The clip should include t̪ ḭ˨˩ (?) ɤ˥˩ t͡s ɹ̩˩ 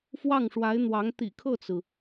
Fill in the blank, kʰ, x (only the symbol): kʰ